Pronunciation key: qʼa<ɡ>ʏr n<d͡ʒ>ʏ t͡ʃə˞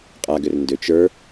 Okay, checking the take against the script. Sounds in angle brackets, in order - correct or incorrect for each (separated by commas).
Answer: correct, incorrect